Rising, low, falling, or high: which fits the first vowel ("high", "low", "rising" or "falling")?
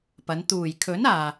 rising